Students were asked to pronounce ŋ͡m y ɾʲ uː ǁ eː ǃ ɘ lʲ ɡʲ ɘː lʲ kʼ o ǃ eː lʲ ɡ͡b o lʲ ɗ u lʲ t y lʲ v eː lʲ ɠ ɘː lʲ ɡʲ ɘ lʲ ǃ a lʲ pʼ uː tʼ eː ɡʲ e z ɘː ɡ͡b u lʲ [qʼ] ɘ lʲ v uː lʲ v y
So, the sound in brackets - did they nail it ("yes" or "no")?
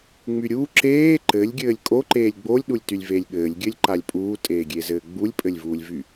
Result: no